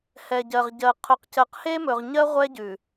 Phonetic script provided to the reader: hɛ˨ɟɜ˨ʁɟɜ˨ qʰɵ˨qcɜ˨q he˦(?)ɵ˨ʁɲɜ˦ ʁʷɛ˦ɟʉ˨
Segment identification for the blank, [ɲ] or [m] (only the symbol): m